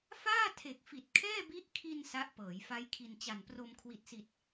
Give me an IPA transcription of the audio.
faː˥˩tʰe˨˩k̚fi˨˩t̚ kʰɛː˥˩bi˦˥ʔ kʰi˧n sa˦˥ʔpɤː˩˦jfa˦˥jkʰi˧n t͡ɕa˨˩npro˧m kʰwi˨˩t̚si˨˩t̚

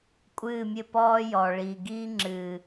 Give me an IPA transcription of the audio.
kʷʼɨː˦˨mʲɘ˦˨ pɔː˦jɔ˨ɭiː˨ ɡiː˦ŋ͡ǁɨː˨

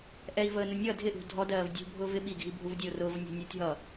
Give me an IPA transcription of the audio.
ʔɛi̯vəː nʊnʲʌ dʱɪʔṳ dʱɔdɜːv dʲṳ bʱʊːvɪ ɓiɡʱi bʱuvdʲʊːrʊːv nʲɑ̤nʲəːtʲɦʌ

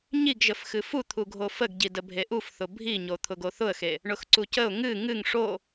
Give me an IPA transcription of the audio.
ɲiɡʒəf xɨfut̪ʰuɡʱo fəɡɟidə bʱeʔufθʊ bʱiɲo t̪ʰʊɡoθʊə̯xe | ɳʊxǀucəʊ̯ ŋɨ ŋɨŋ ʂo

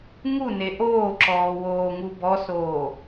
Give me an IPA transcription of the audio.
ŋu neʔoːǁɔː woːŋubɔsoː

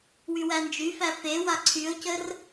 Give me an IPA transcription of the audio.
wywænd͡ʒyfæ fe waǀʰyo̯cər

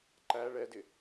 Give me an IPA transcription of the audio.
ǃæ ɭɛdɪ

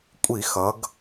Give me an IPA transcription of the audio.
kʷʼi˧˩˧xʌ˩˧ɡ

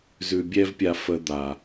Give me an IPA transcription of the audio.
zʉ˧bʲɛ˦vpʲa˧ fə˧d̪a˨

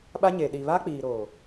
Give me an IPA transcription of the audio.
ɓa˦ ɲe˨ ɗi˨βa˦k͡piː˨ ɾoː˨

